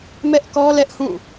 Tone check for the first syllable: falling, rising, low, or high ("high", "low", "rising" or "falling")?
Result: high